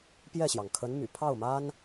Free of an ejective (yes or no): yes